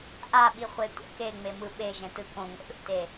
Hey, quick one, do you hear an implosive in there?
yes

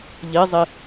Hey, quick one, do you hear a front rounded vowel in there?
no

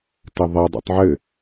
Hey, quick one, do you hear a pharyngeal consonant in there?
yes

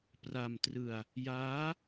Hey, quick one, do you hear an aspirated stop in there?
no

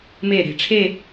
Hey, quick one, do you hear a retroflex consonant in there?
yes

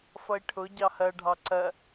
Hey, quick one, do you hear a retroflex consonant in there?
yes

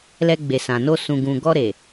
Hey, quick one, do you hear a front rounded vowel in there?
no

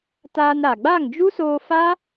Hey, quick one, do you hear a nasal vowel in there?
no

